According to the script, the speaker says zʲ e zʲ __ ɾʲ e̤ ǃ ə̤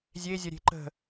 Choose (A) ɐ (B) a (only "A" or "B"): A